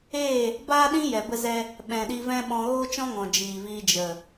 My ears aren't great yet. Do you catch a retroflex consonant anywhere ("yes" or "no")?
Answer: no